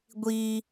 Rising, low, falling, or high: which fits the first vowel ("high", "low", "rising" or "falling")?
high